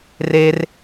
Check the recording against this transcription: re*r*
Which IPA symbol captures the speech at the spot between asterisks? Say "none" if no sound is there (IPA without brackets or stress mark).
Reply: r